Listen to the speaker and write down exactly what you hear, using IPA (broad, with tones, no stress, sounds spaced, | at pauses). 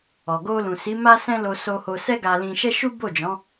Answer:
ɔ˨ ɡ o˧ l ũ˨ s i˨˦ m a˦ s ɛ̃˦ l o˧ s o˧ h o˧ s ɛ˦ ɡ a˧ l ĩ˧ ʃ ɛ˦ ʃ u˦ b o˦˨ d͡ʒ ɔ̃˨˦